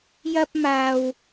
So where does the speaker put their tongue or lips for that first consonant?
palate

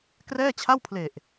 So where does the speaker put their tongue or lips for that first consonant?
velum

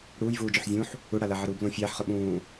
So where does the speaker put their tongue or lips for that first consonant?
retroflex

